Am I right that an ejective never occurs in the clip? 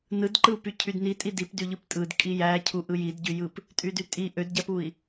no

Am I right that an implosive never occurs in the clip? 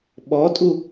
no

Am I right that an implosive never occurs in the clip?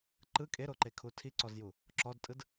yes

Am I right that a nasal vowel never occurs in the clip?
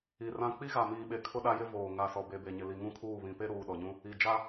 no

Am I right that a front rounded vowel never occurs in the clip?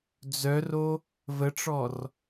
no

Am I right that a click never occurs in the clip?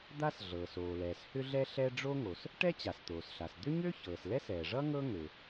yes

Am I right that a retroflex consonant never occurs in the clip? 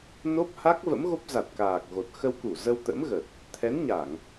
yes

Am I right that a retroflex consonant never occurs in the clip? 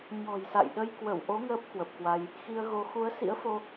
yes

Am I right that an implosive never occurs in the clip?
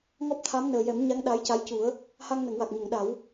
no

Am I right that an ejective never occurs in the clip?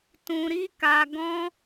yes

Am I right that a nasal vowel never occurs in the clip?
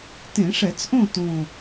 no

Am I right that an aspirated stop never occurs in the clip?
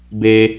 yes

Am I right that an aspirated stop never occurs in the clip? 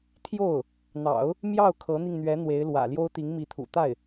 no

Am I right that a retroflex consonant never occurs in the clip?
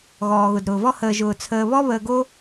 yes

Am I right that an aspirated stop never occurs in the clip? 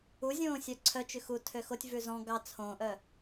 no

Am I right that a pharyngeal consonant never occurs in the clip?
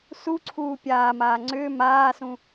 yes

